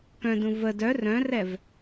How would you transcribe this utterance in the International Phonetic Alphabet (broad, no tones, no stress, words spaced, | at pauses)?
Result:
kœ̃dũ və dœ rœ̃rɛv